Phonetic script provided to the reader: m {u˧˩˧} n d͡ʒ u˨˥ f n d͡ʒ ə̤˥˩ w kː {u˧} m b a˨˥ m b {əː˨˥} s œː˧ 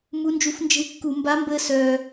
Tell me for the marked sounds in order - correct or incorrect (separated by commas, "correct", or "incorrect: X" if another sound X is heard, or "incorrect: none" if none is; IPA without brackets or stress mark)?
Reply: incorrect: u˨˥, incorrect: u˧˩˧, incorrect: əː˧